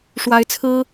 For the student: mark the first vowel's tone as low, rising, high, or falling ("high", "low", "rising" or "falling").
rising